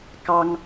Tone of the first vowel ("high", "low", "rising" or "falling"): high